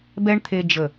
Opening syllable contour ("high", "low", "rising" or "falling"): high